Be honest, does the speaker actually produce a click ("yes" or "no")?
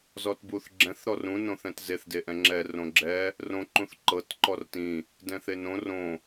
yes